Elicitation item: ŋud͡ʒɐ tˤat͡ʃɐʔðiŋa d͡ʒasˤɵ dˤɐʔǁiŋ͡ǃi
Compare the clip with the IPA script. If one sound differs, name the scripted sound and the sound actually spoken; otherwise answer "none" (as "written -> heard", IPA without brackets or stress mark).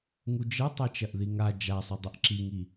ŋ͡ǃ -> ŋ